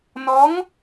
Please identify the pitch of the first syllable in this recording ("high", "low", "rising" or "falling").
rising